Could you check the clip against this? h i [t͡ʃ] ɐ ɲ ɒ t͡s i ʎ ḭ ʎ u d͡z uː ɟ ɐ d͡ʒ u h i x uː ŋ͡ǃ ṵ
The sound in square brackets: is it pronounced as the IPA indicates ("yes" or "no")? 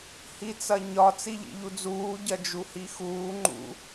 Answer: no